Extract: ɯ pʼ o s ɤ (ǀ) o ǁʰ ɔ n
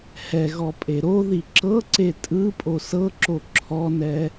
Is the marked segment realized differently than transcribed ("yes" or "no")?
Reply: yes